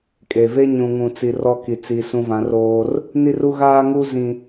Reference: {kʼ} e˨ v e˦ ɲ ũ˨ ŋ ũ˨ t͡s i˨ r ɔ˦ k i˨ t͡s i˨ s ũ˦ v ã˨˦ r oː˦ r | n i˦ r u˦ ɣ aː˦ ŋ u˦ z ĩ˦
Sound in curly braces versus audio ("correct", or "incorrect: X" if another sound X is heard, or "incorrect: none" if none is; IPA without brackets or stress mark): correct